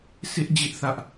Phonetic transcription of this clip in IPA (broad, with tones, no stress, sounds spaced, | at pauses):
sʰ ɪ˦ ʔ d͡ʑ ɪ˦ ʔ θ ä˦ ʔ